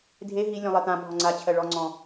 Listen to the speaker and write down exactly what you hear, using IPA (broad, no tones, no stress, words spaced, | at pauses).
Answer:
dʱe ɦi lʲɔ̃lˠɜt̪ã bʱɔŋ͡ǀa t͡ɕʰɜɭɔ ŋ͡ǀɔ̃